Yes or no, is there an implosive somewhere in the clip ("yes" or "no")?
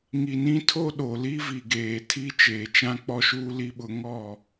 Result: yes